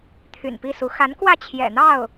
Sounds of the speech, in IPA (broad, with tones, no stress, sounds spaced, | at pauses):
t̪ʰ y̰˨˩ n p i˥˩ s u˧˥ x a˧˥ n k w ä˥˩ t͡ɕʰ j ɛ̰˨˩ n̪ ɑ˥˩ ʊ̯